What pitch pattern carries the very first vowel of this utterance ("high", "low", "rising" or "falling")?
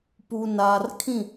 low